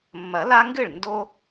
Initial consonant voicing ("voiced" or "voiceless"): voiced